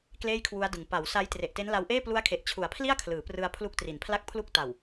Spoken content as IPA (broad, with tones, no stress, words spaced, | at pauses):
kleː˥˩jkʰwu˦˥a̯dɯ˨˩ŋ pa˩˦w sa˦˥j tre˨˩ʔte˦˥nla˧wʔeː˥˩ plu˦˥a̯kʰe˨˩ʔt͡ɕʰu˩˦a̯pʰli˥˩a̯ kʰlɯː˩˦prɯ˧a̯ pʰlu˦˥k̚tri˩˦npʰla˥˩k̚pʰlu˥˩k̚ ta˨˩w